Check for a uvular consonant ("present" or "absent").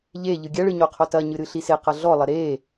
present